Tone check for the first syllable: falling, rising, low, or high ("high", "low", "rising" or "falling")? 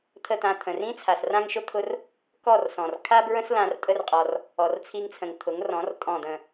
falling